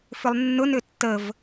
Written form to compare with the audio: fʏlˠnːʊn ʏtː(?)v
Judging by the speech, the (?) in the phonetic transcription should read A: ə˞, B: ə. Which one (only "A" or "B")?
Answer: B